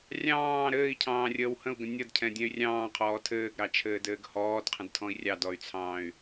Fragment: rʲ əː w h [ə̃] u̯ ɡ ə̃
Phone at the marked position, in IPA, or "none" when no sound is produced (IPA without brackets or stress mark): ə̃